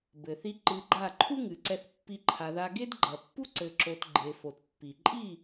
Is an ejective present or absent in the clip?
present